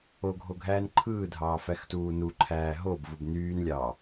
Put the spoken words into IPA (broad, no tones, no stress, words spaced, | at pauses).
oɡʱo ɡʱæːnǃʰɯːdʱɑː fæxtuːnuǃʰæː ɦobvub nyːnlʲɑː